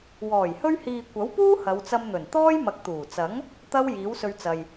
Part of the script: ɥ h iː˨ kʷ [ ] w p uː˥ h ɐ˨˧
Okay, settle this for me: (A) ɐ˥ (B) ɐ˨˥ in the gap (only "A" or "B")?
B